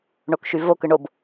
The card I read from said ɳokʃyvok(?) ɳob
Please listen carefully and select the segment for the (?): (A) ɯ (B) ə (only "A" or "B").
A